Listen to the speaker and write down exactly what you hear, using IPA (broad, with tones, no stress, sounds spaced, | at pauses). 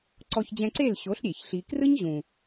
ǀ ɔ˧ ç d͡ʑ ɛ̃˧ ǀ e˦˨ l ɕ o˨˦ ɬ ɾʲ e˨ ç ɬ i˧ k r ɯ˦ ɲ ʑ ũ˨